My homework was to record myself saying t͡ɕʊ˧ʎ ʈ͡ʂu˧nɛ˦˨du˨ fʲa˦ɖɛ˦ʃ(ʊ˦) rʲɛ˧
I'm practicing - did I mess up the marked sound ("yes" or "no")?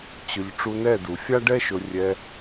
yes